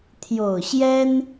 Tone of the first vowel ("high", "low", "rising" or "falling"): low